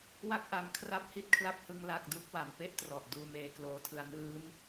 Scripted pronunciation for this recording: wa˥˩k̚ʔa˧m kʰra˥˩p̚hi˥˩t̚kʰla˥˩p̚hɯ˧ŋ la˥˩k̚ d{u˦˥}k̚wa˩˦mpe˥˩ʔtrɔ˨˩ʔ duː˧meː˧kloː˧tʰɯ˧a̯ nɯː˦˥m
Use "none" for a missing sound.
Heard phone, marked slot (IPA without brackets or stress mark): u˦˥